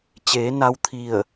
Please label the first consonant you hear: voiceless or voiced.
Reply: voiceless